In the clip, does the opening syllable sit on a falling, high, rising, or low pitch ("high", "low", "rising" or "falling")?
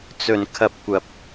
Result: low